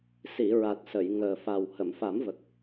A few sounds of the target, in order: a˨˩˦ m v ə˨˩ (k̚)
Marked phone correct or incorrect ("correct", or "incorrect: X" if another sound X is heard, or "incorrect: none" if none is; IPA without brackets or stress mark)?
correct